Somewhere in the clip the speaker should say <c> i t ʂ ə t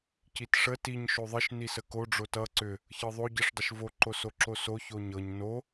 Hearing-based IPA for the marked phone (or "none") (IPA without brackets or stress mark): c